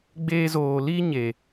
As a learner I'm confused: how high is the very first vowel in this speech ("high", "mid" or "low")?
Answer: mid